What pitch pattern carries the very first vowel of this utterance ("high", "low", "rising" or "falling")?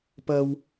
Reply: high